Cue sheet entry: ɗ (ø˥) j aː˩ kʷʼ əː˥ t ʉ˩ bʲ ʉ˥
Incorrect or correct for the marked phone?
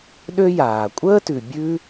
correct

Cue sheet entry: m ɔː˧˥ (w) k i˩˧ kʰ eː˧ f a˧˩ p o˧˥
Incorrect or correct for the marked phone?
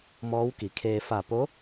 correct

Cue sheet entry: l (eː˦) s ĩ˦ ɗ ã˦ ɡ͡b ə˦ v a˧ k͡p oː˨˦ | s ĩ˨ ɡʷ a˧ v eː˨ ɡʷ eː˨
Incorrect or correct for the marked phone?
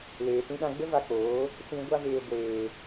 incorrect: eː˨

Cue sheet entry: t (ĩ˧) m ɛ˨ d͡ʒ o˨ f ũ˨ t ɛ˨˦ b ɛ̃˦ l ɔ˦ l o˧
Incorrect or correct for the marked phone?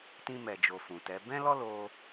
correct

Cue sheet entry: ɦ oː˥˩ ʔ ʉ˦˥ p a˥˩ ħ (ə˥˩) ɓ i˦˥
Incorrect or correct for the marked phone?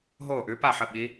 correct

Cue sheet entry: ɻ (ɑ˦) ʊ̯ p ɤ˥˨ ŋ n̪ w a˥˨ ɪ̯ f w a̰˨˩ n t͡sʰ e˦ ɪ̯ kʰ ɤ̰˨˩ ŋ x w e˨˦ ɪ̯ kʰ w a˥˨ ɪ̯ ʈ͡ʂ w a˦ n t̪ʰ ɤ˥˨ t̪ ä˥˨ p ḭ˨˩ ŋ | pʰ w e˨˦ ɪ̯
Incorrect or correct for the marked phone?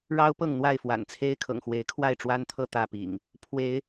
correct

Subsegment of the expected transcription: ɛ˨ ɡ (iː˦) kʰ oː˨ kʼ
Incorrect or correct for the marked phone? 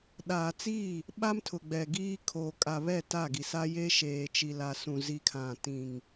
correct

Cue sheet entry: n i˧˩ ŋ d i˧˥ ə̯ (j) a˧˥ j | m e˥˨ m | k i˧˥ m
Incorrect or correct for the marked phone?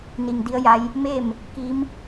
correct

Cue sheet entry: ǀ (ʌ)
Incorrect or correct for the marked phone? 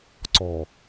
incorrect: ɔ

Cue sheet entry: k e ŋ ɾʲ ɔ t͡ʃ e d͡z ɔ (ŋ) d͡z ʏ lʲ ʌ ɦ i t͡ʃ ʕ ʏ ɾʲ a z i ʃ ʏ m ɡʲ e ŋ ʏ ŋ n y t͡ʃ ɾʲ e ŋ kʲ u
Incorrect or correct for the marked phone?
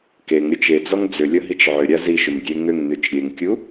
correct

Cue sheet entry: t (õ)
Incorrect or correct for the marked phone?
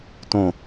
correct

